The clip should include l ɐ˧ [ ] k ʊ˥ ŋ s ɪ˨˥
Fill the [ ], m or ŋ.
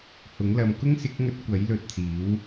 m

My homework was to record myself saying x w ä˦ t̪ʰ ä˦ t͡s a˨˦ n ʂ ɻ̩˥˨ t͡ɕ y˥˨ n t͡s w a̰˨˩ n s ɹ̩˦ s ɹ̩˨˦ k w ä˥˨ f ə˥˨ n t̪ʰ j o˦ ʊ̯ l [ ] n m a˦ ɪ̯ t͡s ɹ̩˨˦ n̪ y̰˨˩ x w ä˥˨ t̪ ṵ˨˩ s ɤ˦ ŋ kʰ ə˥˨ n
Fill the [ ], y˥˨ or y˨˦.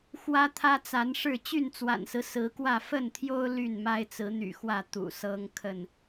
y˥˨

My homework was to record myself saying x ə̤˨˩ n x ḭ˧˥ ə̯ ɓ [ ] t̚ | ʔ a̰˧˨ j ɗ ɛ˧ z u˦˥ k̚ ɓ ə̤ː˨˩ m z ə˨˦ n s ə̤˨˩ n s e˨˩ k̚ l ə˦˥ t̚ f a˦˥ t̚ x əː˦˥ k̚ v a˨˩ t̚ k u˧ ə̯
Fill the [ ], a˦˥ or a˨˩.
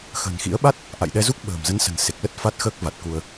a˦˥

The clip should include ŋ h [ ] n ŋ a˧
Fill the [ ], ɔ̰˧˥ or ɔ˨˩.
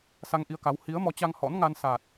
ɔ̰˧˥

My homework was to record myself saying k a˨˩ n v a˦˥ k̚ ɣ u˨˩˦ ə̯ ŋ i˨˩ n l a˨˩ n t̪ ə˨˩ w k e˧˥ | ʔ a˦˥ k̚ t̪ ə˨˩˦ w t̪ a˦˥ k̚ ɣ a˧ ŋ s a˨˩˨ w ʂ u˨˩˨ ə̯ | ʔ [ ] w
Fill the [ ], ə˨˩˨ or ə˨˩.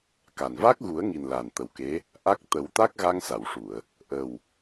ə˨˩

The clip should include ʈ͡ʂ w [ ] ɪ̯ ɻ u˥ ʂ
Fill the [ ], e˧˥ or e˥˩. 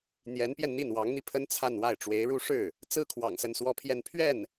e˧˥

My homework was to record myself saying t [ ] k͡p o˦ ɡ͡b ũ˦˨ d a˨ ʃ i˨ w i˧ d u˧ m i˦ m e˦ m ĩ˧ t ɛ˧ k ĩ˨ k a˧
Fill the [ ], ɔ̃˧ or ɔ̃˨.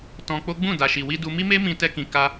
ɔ̃˧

